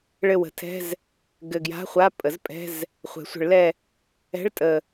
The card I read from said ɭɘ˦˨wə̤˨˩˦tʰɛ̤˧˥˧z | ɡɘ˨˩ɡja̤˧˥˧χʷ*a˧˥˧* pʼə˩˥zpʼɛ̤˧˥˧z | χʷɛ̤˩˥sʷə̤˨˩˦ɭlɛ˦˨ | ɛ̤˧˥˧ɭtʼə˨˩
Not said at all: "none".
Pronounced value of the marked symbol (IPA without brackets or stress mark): a˧˥˧